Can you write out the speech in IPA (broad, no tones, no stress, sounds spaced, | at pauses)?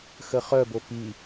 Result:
x ə χ œ b o p i